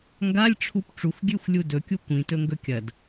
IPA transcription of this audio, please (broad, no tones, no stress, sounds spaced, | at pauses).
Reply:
ŋ ɡ a lʲ ʈ͡ʂʰ u p ʈ͡ʂ u x ɡʲ ʉ xʷ lʲ u d ɵ kʲ u kʷ ĩ t ɵ ŋ ɡ ɵ kʲ ɐ d